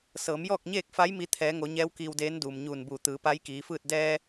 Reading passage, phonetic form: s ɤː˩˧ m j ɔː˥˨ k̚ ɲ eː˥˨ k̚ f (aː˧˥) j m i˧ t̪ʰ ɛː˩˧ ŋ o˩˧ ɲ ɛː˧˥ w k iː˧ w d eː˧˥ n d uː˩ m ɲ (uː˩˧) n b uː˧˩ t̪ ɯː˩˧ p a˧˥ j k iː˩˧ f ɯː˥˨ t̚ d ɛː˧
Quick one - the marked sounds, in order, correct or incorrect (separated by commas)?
incorrect, incorrect